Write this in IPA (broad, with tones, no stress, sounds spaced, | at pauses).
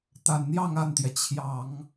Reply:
t̪ a˨˩ n n̪ j ɑ˥˧ ŋ a˥˩ n t̪ j ɛ˩ t͡ɕʰ j ɑ˨˩˦ ŋ